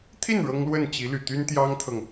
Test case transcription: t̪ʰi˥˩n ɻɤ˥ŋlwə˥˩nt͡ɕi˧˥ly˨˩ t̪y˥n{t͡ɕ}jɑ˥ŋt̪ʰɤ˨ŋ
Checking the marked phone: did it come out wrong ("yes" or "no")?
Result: yes